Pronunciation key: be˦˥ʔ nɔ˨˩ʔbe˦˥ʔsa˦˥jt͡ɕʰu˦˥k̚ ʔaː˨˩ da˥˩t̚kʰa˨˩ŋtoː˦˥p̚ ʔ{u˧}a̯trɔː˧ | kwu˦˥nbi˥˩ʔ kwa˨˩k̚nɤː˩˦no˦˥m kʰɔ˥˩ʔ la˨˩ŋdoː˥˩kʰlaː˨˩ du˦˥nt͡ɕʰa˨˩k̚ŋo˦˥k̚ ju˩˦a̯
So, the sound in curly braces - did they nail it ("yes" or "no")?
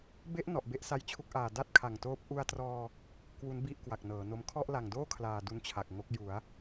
yes